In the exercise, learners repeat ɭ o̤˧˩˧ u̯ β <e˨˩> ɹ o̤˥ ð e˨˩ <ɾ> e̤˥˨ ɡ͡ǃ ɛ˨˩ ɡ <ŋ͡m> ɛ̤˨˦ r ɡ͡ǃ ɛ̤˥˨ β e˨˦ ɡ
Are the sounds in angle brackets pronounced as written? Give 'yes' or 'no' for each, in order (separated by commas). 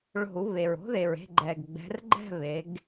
yes, no, no